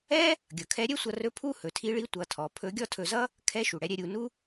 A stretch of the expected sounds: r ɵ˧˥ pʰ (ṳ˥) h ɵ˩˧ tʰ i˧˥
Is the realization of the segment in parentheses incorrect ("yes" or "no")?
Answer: yes